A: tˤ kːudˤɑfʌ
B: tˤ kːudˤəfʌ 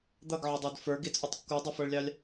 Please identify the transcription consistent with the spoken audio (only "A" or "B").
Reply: B